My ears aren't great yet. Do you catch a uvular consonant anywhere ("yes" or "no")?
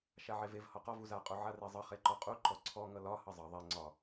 yes